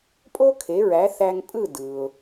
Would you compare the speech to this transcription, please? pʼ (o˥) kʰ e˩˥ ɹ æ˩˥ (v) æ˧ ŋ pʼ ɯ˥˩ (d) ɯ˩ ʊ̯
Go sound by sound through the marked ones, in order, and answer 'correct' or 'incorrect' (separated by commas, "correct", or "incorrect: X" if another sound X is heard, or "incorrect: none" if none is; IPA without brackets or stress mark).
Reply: correct, incorrect: θ, correct